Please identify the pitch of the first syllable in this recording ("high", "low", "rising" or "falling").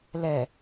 low